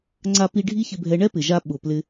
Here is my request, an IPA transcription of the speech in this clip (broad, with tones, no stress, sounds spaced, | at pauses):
ŋ͡ǀ a˦ p i˦ ɖʱ i˦ ç ɪ˧ bʱ ɛ˧ ɳ ɛ˦ p ɪ˨ ʒ a˧ ɓ ʊ˨ p l ɪ˧